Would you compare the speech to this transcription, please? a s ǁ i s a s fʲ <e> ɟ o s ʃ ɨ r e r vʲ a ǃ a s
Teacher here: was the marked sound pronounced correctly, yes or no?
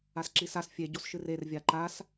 yes